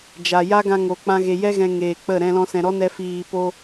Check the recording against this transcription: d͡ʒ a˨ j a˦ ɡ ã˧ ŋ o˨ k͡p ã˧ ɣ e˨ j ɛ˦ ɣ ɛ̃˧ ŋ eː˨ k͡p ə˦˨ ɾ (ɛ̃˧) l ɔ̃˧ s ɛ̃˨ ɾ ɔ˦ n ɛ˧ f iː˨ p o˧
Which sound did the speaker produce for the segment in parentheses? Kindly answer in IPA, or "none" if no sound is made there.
ɛ̃˧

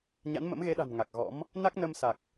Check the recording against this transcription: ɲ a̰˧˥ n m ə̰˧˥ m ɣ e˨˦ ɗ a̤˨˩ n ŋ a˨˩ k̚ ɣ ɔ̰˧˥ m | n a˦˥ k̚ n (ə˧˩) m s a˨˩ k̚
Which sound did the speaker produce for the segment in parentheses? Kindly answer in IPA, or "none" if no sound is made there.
ə˧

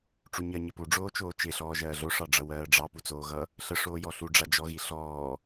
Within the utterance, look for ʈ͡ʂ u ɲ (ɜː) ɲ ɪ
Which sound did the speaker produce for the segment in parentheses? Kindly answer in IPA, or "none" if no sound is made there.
ɜ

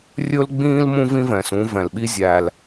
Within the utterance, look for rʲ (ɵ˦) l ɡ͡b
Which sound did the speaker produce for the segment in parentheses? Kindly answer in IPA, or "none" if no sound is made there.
ɵ˦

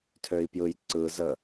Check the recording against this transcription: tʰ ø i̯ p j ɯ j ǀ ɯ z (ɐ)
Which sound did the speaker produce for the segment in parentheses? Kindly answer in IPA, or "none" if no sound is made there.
ə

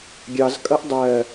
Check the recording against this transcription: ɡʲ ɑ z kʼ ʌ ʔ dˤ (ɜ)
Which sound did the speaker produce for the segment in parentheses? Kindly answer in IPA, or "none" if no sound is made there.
ɜ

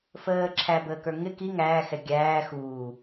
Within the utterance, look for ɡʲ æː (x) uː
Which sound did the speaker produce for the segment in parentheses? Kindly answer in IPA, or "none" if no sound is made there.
x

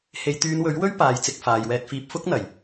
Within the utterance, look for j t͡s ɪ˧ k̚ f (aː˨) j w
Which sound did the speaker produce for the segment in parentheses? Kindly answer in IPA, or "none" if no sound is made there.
aː˨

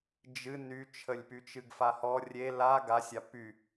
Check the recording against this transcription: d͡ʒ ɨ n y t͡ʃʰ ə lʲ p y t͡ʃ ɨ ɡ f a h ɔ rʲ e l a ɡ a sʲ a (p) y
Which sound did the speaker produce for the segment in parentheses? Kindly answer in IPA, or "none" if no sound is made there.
p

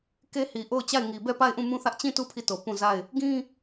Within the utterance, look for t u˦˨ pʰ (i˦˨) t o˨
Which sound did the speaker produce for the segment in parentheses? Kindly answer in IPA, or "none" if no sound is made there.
i˦˨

